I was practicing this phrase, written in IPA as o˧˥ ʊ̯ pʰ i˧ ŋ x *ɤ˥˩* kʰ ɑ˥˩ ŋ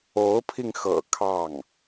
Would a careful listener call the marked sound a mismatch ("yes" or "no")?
yes